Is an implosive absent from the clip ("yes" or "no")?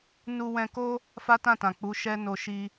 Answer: yes